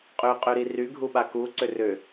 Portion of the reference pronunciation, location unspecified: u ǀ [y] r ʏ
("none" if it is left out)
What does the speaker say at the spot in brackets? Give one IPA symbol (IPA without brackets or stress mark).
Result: ʏ